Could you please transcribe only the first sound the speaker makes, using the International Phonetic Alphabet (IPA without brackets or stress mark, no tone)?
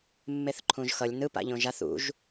mː